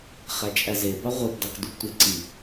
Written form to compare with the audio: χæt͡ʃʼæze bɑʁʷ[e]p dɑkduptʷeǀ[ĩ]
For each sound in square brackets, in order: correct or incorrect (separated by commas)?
correct, incorrect